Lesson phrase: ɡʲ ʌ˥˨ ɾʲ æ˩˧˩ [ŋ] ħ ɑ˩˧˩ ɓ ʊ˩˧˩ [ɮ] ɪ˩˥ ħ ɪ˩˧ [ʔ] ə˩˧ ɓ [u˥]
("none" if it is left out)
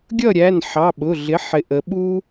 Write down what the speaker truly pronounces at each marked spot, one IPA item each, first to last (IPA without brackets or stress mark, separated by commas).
n, ɮ, ʔ, u˥